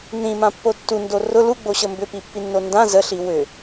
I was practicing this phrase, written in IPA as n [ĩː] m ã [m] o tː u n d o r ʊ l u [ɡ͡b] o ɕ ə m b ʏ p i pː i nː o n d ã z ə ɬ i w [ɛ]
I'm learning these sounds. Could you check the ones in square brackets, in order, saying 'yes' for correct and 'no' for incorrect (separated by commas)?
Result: no, no, yes, no